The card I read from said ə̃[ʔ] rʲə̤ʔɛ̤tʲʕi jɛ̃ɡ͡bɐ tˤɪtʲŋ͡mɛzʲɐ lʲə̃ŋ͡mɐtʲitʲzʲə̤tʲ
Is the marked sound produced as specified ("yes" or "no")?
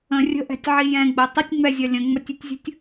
no